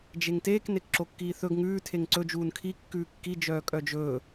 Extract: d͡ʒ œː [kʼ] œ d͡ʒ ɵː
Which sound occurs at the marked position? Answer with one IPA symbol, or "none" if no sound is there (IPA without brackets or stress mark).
kʼ